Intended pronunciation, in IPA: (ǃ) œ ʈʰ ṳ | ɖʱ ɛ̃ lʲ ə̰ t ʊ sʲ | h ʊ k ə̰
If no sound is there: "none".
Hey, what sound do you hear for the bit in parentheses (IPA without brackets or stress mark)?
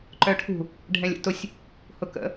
ǃ